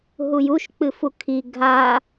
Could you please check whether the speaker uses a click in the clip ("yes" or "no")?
no